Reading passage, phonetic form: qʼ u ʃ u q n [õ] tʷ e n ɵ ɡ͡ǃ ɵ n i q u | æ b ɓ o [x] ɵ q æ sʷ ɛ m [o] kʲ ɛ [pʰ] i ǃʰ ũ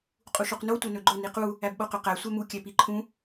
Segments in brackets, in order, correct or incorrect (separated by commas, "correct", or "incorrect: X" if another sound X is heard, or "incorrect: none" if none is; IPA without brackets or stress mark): incorrect: o, incorrect: q, incorrect: u, incorrect: p